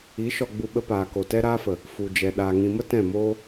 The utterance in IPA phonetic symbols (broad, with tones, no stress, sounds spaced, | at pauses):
i˨˦ ʃ ɔ˧ ɡ͡b u˧ ɓ ə˧ p aː˨ k o˨ t ɛ˦ ɾ aː˦ f ə˨ | f u˨ d͡ʒ ɛ˨ ɗ aː˨ ŋ ĩ˨ m ə˦ t ɛ̃˦˨ m oː˦